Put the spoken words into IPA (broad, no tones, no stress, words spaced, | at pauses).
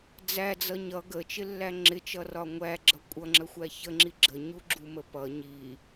d͡zæd͡zʌ ɲʌ ɡət͡ʃɪlːæ ŋ͡ǁɪt͡ʃʌrɒ ŋʷæɡ͡ǁʌ kʷʼʌŋ͡ǁəxʷæ çəŋ͡ǁi ɡ͡ǁəɲuɡ͡ǁumə pʌ ɲi